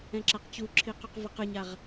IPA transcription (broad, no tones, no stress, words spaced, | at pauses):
ɛ̃ǁaqt͡ɕuǁʰi quqvʌqɯɲaʁ